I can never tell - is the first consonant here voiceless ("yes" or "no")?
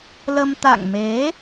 no